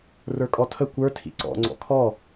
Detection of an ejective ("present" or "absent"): present